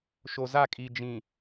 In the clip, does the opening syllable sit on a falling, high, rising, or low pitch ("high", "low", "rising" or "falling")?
low